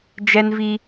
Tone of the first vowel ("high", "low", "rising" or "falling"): high